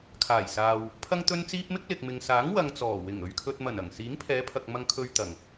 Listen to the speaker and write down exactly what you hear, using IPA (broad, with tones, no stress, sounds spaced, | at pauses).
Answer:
kʰ aː˨˩ j s aː˨ w | pʰ ɐ˥ ŋ t̪ ɵ˥ n t͡s iː˥ p̚ m ɪ˥ k̚ l ɪ˨ k̚ m ɪ˨ ŋ s aː˨˥ ŋ w ɐ˧ ŋ t͡s ɔː˨˩ w ɪ˨˩ ŋ ɵ˨ ɥ kʰ ɵ˧ t̚ m ɐ˨˩ n ɐ˨˩ ŋ s iː˨˥ ŋ pʰ ɛː˨˧ pʰ ɐ˨ k̚ m ɐ˧ ŋ kʰ ɵ˧ ɥ t̪ ɐ˨˩ ŋ